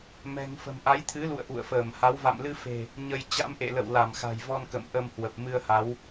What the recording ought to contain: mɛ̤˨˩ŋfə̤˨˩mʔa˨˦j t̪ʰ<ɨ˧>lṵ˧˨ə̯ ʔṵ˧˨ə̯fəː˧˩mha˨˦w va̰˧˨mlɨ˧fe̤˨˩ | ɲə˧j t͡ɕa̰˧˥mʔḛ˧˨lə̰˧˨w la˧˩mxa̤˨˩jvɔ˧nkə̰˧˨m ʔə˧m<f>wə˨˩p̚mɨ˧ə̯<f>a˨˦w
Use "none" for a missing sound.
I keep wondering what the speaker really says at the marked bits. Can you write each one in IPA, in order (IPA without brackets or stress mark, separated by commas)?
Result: ɨ˨˦, h, h